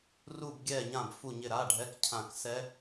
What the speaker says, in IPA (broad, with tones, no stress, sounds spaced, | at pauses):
r u˦˨ b ɡʲ ɛ˦˨ ɲ ã˦˨ b f u˦˨ ɲ ɪ˦˨ ɾ a˧˥˧ ɖʱ ɛ˧˥˧ k cʰ ã˦˨ k s ɛ˦˥